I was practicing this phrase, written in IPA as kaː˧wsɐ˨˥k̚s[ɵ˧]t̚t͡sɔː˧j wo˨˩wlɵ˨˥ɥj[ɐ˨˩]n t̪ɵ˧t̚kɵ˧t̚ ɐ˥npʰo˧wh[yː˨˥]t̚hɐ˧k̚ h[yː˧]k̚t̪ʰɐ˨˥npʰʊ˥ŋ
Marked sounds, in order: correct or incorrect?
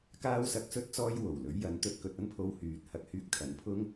correct, incorrect: ɐ˨˥, incorrect: yː˨, correct

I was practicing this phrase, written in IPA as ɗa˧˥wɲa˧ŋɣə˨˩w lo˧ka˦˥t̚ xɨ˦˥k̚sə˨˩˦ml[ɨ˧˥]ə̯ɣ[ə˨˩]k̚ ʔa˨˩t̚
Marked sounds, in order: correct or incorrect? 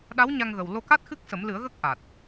incorrect: ɨ˨˩˦, incorrect: ə˦˥

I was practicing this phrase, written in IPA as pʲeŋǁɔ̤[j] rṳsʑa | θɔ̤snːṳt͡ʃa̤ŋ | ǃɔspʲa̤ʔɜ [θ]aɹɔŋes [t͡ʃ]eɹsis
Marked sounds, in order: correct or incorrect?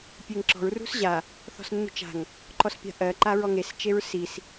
incorrect: ɹ, incorrect: ǃ, correct

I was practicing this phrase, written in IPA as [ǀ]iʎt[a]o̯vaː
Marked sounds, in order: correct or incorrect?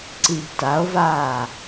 correct, correct

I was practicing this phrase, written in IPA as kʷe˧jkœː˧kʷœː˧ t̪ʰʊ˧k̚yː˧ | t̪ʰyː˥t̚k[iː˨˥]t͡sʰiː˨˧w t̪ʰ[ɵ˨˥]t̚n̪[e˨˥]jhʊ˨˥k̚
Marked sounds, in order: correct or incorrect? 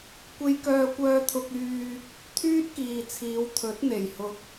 incorrect: iː˨, correct, incorrect: e˨˩

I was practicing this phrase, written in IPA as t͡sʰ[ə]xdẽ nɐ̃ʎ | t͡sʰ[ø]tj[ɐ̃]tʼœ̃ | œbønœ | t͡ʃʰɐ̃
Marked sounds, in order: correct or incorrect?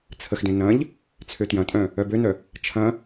correct, correct, correct

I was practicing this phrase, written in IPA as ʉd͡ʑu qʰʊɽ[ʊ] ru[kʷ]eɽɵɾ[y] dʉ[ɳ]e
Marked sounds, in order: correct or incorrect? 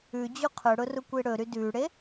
correct, correct, correct, incorrect: ɽ

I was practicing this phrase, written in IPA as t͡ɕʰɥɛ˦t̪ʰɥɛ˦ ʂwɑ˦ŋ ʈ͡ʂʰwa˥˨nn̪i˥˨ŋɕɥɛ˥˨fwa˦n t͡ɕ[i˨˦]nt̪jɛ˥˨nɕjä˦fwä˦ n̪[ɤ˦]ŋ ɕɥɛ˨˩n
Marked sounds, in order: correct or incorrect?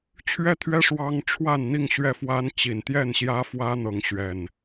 incorrect: i˨˩, incorrect: ɤ˨˦

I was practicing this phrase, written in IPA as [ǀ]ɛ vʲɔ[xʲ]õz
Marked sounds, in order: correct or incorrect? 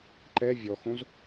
incorrect: ǃ, incorrect: x

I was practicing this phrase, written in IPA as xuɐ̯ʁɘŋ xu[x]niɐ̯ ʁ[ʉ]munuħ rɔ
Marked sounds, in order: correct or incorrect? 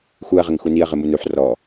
incorrect: none, incorrect: ɘ

